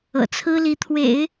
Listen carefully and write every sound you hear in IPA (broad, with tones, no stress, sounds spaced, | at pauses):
ɤ̰˨˩ t͡sʰ ɹ̩˥ l i˧˥ t̪ʰ w ḛ˨˩˦ ɪ̯